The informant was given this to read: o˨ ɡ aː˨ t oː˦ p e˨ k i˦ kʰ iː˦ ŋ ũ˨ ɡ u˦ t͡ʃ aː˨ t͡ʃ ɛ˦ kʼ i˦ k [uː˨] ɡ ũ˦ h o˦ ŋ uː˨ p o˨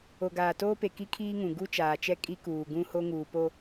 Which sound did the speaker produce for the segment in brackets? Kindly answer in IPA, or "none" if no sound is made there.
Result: uː˨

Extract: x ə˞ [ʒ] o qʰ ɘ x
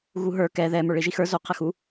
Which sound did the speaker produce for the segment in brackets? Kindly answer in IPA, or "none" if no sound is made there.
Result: z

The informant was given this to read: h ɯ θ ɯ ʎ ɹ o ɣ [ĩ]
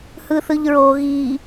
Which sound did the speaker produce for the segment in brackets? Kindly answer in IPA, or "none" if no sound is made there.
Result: i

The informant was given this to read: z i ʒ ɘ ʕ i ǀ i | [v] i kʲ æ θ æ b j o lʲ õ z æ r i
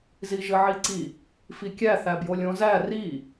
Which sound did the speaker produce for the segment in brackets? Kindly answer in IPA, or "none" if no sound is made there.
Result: f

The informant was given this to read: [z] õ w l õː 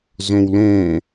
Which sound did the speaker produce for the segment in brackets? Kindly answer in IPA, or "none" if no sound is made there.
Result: z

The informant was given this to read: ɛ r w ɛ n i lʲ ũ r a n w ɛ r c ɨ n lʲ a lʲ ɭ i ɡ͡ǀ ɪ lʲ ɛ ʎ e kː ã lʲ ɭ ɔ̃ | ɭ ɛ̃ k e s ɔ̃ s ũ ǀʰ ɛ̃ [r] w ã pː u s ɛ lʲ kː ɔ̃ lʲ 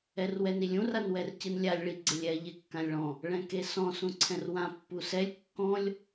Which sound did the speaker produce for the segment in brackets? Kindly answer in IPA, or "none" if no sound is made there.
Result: r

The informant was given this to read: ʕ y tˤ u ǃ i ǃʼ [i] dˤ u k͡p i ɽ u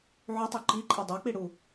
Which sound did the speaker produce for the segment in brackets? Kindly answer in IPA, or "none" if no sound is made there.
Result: i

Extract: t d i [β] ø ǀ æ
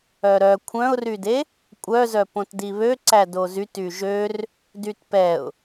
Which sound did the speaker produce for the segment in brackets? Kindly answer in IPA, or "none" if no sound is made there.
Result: β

